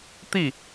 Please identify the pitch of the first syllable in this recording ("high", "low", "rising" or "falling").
falling